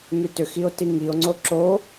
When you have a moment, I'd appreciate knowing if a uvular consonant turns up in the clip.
no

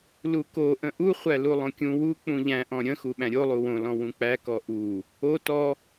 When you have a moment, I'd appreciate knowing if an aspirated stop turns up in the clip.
no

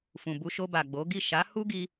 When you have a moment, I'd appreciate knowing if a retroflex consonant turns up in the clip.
no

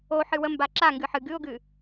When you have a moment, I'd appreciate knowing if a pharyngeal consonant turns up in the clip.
yes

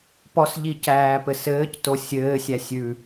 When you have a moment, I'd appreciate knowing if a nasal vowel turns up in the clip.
no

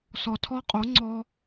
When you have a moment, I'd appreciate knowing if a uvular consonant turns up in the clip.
yes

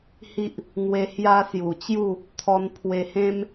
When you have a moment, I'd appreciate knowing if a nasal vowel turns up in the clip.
yes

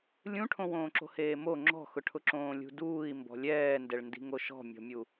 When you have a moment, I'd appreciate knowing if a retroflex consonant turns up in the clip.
yes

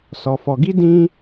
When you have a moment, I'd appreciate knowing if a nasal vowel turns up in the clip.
yes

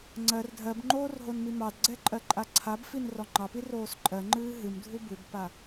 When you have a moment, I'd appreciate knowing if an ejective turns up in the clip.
yes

